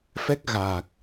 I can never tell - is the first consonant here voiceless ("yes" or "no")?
yes